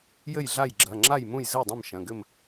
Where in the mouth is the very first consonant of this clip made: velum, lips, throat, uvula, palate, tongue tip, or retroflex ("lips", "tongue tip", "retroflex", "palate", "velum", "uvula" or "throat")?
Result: palate